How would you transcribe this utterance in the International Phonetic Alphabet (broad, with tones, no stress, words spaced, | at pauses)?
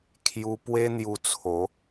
kʰju˧pwe˦ n̪ju˧t͡sʰo˨˦